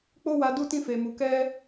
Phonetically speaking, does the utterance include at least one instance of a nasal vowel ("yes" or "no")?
yes